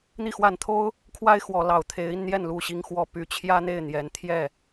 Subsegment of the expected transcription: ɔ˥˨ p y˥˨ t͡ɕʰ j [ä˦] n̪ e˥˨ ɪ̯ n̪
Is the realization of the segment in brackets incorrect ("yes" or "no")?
no